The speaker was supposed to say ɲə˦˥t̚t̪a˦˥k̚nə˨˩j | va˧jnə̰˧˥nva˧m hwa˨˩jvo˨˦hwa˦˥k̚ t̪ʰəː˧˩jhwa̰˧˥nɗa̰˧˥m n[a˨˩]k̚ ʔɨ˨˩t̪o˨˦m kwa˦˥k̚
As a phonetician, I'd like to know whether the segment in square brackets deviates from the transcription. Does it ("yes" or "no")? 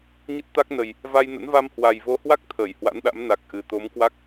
no